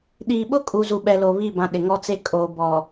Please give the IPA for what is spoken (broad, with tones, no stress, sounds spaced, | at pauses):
ɗ iː˨ ɓ ʊ˦ kʼ u˨ z u˨ ɓ ɛ˨ l o˨ β i˦˨ b ã˨ ɗ ɪ˨ ŋ ɔ˦ t͡s e˦ kʼ oː˨ b ɔ˨